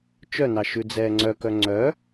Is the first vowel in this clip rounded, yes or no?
yes